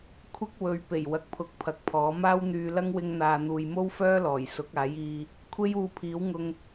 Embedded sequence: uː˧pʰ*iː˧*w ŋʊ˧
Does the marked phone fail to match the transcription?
yes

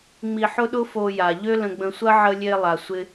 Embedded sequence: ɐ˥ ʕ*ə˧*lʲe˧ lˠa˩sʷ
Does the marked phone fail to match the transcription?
no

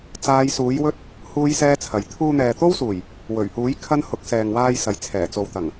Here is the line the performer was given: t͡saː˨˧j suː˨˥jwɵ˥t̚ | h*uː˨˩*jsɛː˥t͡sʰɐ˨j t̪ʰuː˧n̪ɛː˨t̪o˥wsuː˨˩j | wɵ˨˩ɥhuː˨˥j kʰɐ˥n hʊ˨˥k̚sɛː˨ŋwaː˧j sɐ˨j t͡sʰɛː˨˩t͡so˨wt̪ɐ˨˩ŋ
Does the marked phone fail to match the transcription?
yes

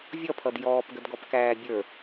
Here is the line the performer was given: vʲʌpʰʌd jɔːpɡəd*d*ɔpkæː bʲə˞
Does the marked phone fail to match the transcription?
yes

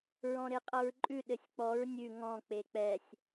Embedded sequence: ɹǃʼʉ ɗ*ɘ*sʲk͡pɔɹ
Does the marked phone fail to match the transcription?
no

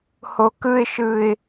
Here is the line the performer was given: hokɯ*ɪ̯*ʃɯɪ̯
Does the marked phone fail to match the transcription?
no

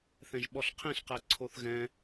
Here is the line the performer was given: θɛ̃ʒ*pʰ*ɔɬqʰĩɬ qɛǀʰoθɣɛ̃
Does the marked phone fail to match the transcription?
yes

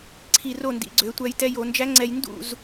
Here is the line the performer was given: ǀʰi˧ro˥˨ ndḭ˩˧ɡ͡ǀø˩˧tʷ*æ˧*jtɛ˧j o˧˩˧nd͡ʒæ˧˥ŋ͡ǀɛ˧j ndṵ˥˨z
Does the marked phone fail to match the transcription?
no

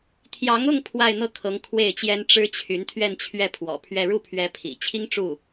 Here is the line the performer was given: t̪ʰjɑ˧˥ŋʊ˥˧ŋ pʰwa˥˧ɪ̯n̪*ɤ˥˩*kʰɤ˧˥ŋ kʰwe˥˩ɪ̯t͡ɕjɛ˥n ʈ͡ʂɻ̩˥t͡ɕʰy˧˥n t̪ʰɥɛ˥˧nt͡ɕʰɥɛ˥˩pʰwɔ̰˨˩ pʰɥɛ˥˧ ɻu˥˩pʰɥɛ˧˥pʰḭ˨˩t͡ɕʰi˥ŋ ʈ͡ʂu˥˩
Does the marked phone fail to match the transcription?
no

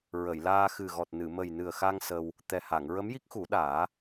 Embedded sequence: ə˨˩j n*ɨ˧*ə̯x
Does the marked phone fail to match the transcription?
yes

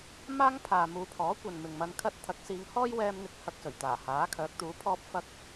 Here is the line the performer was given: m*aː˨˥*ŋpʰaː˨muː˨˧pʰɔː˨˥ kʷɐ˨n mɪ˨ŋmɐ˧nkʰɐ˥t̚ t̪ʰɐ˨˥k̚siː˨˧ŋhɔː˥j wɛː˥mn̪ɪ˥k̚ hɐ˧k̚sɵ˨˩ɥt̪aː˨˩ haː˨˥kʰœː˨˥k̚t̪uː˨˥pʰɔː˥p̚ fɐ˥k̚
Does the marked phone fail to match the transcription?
yes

